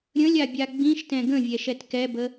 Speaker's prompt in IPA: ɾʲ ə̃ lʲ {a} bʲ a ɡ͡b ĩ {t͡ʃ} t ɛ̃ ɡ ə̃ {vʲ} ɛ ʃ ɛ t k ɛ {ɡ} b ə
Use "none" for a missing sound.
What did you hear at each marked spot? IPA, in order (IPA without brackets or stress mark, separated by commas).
a, ʃ, vʲ, none